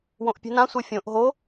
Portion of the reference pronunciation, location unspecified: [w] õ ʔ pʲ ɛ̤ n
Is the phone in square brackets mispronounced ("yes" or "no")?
no